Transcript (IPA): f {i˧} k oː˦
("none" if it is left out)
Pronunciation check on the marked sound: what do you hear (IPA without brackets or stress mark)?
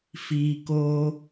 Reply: iː˧